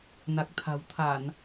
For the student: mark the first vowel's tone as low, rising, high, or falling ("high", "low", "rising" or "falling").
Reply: low